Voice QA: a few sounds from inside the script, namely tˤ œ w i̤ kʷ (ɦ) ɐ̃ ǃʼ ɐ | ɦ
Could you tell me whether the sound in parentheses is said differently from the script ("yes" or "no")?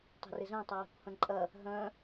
yes